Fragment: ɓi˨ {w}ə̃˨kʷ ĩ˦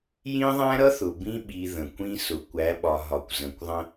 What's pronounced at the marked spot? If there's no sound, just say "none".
ð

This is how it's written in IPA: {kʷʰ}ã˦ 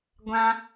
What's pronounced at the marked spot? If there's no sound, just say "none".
ɡʷ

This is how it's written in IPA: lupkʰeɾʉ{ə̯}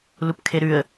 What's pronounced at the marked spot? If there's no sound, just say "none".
ə̯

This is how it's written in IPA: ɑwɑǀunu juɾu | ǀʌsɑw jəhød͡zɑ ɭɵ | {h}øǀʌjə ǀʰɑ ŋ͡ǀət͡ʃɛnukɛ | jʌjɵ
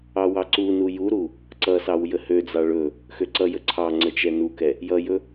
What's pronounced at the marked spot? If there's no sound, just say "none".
x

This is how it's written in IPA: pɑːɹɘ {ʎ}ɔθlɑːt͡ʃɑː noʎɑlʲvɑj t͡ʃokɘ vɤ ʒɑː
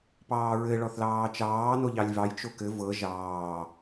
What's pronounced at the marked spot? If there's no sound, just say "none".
ɭ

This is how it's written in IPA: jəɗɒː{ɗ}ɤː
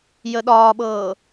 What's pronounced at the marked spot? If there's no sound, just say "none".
ɓ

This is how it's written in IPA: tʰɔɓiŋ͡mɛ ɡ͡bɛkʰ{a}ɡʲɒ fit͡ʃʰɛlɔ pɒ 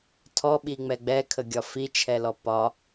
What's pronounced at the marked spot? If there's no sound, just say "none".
ə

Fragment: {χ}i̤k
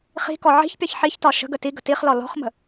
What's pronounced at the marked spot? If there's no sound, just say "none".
χ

